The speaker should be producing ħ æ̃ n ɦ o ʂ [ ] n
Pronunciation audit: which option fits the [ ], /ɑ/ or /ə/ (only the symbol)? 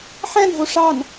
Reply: ɑ